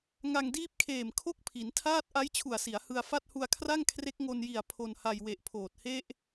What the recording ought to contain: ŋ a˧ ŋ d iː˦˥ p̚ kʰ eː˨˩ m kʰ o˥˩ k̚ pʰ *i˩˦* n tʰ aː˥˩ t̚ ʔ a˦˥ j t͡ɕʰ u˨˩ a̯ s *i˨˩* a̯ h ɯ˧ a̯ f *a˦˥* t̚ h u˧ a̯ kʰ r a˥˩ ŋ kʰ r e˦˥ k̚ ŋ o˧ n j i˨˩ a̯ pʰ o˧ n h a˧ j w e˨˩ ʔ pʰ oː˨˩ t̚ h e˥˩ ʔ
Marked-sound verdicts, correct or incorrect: correct, incorrect: i˩˦, incorrect: a˥˩

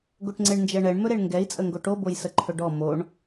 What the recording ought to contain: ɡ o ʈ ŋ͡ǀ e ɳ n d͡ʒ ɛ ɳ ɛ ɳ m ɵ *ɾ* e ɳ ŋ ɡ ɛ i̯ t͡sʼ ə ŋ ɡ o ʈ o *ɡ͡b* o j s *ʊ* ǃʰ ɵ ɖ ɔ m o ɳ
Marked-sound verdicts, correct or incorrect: correct, incorrect: b, incorrect: ə

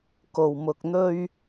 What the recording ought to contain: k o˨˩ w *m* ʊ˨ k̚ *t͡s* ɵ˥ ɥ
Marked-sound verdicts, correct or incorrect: correct, incorrect: n̪

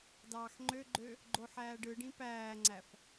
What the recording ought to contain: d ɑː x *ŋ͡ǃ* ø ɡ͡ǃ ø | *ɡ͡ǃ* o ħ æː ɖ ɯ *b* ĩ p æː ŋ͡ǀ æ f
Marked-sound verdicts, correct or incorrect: correct, correct, incorrect: ɖ

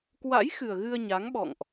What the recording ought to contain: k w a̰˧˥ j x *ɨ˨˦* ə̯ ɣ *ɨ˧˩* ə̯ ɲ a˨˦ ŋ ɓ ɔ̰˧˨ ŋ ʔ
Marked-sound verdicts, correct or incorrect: incorrect: ɨ˨˩, incorrect: ɨ˧

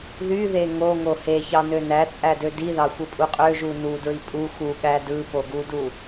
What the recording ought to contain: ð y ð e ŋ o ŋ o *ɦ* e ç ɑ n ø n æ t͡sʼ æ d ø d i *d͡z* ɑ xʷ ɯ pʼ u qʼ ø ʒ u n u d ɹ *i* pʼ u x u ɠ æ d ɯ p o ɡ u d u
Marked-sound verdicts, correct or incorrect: incorrect: h, incorrect: ð, correct

